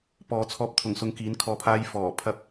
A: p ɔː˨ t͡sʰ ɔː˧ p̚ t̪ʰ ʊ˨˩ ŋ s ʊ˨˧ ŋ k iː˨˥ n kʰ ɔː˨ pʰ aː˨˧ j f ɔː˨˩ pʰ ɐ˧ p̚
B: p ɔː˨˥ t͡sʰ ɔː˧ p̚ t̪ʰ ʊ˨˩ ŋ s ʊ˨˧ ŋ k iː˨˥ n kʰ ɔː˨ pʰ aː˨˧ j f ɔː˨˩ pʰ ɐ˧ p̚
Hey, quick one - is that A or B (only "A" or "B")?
A